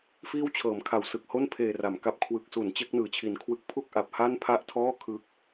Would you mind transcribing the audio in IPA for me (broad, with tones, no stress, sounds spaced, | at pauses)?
f iː˥˩ w t͡ɕʰ ɤː˩˦ m kʰ a˩˦ w s ɯ˨˩ k̚ h o˥˩ n pʰ eː˨˩ r a˩˦ m k a˦˥ p̚ kʰ w ɯ˨˩ k̚ s u˩˦ n t͡ɕ e˦˥ k̚ n ɯː˨˩ t͡ɕʰ i˨˩ n kʰ w ɯ˦˥ k̚ pʰ u˥˩ k̚ ʔ a˨˩ p̚ h a˥˩ n pʰ a˥˩ ʔ tʰ ɔː˥˩ kʰ ɯ˦˥ k̚